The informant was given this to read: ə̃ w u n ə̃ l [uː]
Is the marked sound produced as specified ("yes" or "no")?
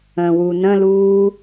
yes